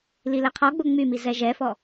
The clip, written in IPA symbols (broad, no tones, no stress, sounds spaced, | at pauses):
l i l ɛ qʰ ɔ ɡ͡b o ŋ͡m y m i z ɛ ʒ ɛ f ɔ